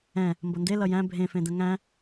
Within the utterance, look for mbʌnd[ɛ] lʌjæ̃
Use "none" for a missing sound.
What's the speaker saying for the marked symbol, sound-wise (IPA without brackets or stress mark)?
e